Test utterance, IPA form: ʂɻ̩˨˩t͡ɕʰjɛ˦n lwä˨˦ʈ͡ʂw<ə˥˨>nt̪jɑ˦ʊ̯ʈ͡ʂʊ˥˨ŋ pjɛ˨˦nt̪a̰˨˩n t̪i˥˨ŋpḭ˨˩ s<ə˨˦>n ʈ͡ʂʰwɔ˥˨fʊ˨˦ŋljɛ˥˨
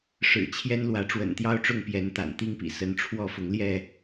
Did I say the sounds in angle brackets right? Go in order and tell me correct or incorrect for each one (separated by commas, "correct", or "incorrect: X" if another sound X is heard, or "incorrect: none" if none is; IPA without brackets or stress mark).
incorrect: ə̰˨˩, correct